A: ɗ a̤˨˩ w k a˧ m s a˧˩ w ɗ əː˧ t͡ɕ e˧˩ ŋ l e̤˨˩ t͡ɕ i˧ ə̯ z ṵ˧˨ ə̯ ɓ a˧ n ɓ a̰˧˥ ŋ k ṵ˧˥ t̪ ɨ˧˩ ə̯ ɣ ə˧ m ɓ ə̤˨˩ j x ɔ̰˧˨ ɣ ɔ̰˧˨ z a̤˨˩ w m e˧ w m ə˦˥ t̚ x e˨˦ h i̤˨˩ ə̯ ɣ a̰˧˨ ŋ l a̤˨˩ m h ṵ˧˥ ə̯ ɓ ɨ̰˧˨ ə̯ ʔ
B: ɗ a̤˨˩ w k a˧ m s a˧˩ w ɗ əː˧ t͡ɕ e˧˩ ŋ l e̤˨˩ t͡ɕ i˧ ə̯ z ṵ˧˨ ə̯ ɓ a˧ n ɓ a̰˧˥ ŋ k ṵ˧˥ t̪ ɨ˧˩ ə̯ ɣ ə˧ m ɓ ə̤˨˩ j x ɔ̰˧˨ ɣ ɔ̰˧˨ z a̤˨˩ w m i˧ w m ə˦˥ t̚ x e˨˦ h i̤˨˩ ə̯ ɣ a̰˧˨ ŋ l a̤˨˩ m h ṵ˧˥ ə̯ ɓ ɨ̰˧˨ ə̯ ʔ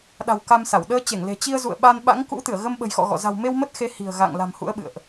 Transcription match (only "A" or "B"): A